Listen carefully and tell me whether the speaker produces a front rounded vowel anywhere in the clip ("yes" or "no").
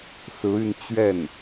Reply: yes